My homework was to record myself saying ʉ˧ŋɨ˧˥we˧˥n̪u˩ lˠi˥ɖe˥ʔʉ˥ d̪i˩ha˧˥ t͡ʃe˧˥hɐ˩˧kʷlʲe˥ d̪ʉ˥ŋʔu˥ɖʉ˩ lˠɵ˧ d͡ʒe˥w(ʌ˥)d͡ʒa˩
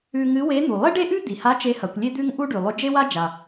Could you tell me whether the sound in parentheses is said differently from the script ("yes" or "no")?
yes